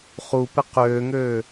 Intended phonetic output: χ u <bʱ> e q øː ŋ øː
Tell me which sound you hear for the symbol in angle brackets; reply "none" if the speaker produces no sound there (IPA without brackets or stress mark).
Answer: p